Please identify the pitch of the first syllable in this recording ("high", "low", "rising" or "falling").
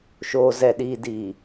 low